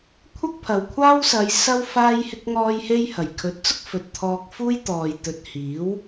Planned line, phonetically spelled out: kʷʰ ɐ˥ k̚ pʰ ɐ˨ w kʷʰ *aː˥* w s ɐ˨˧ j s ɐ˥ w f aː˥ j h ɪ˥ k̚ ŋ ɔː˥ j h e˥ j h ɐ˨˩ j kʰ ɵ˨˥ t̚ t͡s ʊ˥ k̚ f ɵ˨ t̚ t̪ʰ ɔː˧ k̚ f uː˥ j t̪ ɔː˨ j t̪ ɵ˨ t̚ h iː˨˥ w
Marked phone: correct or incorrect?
correct